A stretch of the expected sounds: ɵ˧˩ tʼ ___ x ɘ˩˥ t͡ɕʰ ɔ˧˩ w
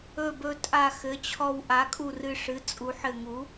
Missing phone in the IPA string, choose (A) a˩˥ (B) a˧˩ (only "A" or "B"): B